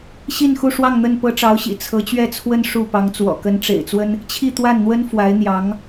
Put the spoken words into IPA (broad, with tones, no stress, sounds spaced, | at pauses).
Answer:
ɕ i˥˧ n x u˥˧ ʂ w ɑ˥˧ ŋ n̪ ə˥˩ n p ɤ˥ ʈ͡ʂ ɑ˧˥ ʊ̯ ɕ ḭ˨˩ t͡sʰ ɤ˧˥ t͡ɕ ɥ ɛ˥˩ t͡sʰ w ə˥ n ʂ u˥˩ p ɑ˧˥ ŋ t͡s w ɔ̰˨˩ k ə˧˥ n ʈ͡ʂ ḛ˨˩ ɪ̯ t͡s w ə˥ n | t͡ɕʰ i˥˧ t̪ w a˥˩ n n̪ w ə˥ n f w a˧˥ ɪ̯ n̪ j ɑ˧˥ ŋ